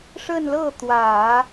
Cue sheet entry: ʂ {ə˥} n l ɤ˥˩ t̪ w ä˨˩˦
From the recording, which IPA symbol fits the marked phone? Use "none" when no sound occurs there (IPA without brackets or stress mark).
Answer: ə˥˧